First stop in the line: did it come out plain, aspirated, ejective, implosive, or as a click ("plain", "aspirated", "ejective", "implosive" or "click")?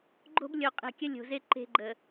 click